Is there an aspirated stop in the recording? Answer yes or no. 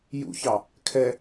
yes